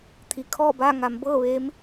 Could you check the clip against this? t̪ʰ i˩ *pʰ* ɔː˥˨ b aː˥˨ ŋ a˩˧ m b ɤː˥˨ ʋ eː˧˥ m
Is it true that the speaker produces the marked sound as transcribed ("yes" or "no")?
no